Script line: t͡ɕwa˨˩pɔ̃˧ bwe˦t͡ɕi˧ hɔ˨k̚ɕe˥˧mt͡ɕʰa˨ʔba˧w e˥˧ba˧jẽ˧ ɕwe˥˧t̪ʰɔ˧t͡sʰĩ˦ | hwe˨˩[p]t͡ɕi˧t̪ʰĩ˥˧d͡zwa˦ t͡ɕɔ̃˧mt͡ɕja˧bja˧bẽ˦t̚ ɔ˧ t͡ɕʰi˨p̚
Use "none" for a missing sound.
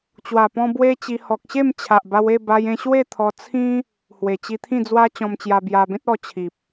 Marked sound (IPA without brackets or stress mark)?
none